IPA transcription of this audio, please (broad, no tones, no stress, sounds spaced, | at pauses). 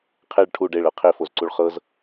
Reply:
qʰ e ɭ ʈʰ u ɖ e ɭ ɤ qʰ e f o z ǀ u ɭ χ ɤ z